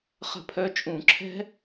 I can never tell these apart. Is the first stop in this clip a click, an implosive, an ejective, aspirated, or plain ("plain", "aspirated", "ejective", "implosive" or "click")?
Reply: aspirated